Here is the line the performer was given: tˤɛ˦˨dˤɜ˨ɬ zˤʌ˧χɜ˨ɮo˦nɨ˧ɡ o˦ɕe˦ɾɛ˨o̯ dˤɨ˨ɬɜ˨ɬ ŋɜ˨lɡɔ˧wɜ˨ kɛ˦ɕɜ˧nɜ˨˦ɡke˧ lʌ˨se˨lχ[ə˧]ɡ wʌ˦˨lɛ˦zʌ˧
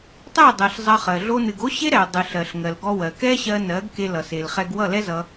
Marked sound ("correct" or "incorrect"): incorrect